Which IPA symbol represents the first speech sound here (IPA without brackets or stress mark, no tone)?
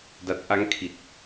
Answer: d